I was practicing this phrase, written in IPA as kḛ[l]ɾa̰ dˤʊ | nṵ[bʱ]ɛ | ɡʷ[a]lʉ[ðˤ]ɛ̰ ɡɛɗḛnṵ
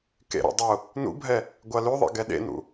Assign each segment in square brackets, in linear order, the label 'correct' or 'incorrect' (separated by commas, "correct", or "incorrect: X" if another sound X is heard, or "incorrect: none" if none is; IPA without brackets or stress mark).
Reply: incorrect: none, correct, correct, correct